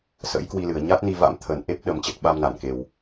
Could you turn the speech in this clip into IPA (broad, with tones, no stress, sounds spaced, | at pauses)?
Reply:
s ə̰˧˥ j k w i˧ l ɨ˨˩ ə̯ ɲ a˦˥ t̚ n i˧ v a̰˧˥ m t̪ʰ ə˨˩ n ʔ e˦˥ p̚ ɗ ə˨˩ m t͡ɕ ə˨˩ t̚ ɓ a˧ m n a˧˩ n k e˨˩ w